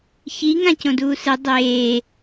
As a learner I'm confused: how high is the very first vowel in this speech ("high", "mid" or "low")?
high